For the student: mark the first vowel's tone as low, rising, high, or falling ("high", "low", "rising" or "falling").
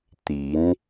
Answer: rising